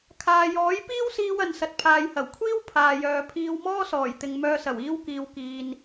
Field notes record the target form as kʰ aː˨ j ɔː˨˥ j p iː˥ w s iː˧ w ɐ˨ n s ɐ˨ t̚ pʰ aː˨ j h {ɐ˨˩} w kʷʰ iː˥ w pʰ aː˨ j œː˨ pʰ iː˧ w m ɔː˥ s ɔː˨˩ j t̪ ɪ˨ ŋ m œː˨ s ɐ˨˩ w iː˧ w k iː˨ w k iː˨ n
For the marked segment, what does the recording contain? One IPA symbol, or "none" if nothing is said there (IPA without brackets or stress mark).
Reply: ɐ˨˩